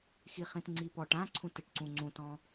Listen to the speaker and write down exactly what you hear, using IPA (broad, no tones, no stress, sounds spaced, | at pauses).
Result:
x i χ ĩ t ŋ͡ǀ i p ɔ ʈ ã ǀʰ ũ t ɘ ʈ ǀ ũ ŋ͡ǀ ũ t ɔ̃